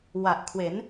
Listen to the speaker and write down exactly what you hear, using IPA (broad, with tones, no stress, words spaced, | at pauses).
wa˨˩ʔkʰwe˩˦n